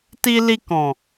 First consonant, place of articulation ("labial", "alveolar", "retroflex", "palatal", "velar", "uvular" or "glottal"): alveolar